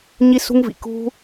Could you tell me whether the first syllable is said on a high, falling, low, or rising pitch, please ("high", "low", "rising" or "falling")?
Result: high